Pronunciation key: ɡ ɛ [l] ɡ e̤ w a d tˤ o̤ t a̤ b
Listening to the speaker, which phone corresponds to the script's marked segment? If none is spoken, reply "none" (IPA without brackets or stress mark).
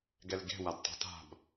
l